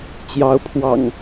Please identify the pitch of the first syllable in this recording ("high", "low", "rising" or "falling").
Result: rising